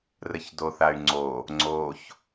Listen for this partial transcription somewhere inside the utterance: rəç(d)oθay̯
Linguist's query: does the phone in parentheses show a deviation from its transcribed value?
no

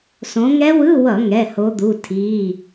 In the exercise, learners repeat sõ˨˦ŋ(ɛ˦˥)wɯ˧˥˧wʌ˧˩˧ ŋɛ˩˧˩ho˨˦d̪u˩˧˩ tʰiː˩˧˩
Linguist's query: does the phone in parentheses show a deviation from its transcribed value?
no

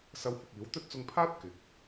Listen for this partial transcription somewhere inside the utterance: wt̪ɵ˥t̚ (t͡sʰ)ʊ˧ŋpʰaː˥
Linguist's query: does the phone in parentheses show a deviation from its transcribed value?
yes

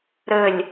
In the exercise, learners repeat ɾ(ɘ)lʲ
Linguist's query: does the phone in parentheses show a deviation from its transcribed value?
no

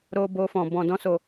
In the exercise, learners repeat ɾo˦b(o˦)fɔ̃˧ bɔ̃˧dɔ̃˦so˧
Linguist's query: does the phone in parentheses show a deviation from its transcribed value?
no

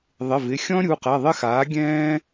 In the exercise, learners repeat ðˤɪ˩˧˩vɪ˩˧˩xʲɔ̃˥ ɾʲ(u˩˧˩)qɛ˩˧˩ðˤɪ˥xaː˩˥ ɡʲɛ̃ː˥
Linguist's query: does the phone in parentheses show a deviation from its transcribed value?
no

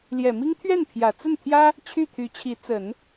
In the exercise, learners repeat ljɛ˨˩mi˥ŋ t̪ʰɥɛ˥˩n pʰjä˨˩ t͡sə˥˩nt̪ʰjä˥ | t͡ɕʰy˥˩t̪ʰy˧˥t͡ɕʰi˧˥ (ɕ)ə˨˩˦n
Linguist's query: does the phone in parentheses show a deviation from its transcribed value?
yes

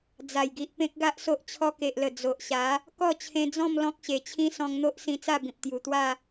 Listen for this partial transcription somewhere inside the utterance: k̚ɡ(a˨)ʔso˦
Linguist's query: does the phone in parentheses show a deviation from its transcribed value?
yes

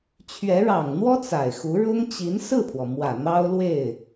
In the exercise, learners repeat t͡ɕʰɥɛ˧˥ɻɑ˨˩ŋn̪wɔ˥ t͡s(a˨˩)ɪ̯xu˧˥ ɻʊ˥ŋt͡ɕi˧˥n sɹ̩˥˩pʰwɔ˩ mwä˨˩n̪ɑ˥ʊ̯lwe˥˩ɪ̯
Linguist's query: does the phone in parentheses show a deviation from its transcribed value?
no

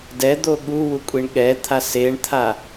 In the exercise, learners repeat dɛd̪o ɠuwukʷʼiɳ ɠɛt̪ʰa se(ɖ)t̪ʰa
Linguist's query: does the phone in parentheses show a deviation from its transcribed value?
yes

